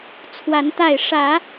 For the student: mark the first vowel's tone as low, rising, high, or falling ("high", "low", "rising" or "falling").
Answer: rising